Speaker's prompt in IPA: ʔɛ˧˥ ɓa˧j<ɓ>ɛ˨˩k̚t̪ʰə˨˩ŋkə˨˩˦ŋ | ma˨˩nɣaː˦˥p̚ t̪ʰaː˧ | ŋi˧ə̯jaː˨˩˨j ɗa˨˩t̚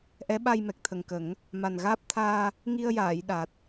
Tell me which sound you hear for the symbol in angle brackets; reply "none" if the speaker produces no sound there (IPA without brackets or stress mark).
m